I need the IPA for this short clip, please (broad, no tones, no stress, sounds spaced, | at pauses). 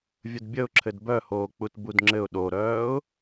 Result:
vʲ ə d bʲ ə ʊ̯ ǁʰ ɘ d b œ h oː k͡p u t b u d ŋ͡ǁ ɘ ʊ̯ ɗ o ɾ œː ʊ̯